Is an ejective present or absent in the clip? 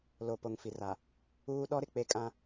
present